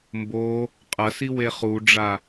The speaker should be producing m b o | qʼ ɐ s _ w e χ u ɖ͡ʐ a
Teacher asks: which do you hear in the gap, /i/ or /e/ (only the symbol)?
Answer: i